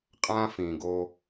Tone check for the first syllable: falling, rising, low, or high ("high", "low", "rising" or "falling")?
high